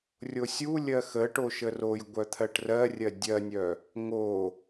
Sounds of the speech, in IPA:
rʲosʲulʲɜ xə ʈoʃərojɡʷœ t̪ʰɜʈrɜrʲɜ dʲɜnʲœ | ŋo

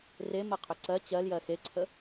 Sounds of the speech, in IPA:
remɜqʰʏ ǀɜ t͡ɕɜljɜ xeǀʰə

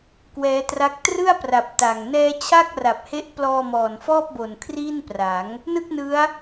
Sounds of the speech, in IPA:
kwɛː˦˥tra˦˥k̚ trɯ˥˩a̯pra˨˩p̚ ta˨˩ŋ nɛː˦˥t͡ɕʰa˥˩k̚ra˨˩p̚he˦˥ʔ plɔː˧mɔː˨˩nfɔː˥˩p̚bo˨˩n kʰriː˥˩npra˩˦ŋ | nɯ˥˩k̚nɯ˦˥a̯

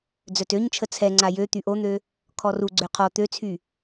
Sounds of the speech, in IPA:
d͡zœtøɲt͡ʃʰə t͡sʰɛŋ͡ǀa jø t̪yʔon̪ø | kʰɔruɡ͡ǀø qʰɔ t̪øt͡sʰy

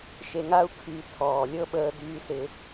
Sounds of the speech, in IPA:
ʃe˧ŋa˦u̯ kʰy˨˦ tʰɔː˨lʲɤ˦ ɓəː˦dyː˦sɪ˦

